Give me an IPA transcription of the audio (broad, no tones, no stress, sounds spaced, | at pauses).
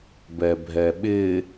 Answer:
b ɛ bʱ ɛ ɓ ɪ